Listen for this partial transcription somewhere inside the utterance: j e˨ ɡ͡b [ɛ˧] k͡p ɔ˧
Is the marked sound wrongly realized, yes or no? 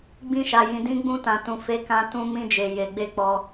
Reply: yes